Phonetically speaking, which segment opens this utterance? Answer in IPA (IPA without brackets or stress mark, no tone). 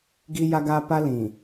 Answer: ɡ